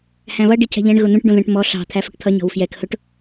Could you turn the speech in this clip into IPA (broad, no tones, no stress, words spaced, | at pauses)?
hæ̃βʌ ɖicʰɛ̤ʎɛ̃ɳ ɣʊn̪ũʈ ɖũðɛ̃ʈmɔ ɬɑ̤ t̪ʰæfʊʈt̪ʰʌ ɲɔ̤wfjɛk hʊʈ